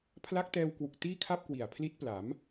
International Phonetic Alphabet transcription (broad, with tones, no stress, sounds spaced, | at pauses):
pʰ l a˦˥ k̚ t ɛː˧ w k w u˨˩ k̚ t iː˥˩ kʰ a˥˩ p̚ k w i˨˩ a̯ pʰ l i˦˥ t̚ p l a˩˦ m